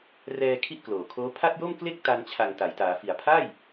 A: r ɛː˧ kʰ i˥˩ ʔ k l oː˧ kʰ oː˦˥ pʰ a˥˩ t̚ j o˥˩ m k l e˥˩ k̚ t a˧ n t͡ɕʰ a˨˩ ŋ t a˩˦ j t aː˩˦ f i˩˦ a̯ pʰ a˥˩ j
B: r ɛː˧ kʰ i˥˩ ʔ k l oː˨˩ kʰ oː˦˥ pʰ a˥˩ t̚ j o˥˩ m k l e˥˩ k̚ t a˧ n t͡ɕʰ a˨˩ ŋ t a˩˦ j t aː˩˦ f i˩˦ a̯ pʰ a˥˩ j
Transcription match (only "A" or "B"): B